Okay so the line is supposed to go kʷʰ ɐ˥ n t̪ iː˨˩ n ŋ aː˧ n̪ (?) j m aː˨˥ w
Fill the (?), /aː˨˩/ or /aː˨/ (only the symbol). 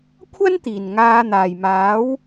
aː˨˩